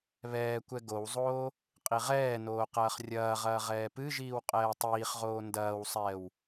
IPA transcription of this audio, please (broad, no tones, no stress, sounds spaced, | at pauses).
β ɛː kʷ ɛ ɡ o w zˤ oː | qʼ i ʁ ɛː n oː q ɐː χ rʲ ɐː ʁ ɐː ʁ ɛː p ɨ ʒ iː w qʼ ɛː tˤ iː χ ʁ oː n d ɐː w sˤ ɛː w